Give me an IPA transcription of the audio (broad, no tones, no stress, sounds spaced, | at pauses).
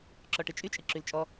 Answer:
ǁ ɔ ʈ ɨ t͡ʃʼ y t͡ʃʼ ɨ ǁ y l t͡ʃʼ ɔ